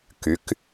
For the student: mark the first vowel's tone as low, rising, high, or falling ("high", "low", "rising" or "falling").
rising